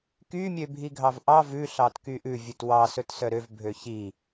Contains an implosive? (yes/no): no